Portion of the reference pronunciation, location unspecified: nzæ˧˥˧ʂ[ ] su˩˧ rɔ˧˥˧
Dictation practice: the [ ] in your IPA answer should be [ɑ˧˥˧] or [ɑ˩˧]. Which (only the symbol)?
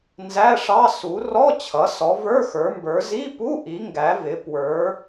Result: ɑ˧˥˧